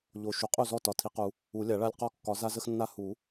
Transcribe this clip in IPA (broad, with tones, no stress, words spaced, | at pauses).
ʎo˨ ʃu˩˥qʼu˥˩zɔ˥˩ tɒ˨tʰi˨˩˦qu˨˩˦ | u˨˩˦lʲa˨˩˦ɭa˦lʲ qɔ˥˩ kːɒ˨˩˦za˦zə˦xnːa˦ hu˨˩˦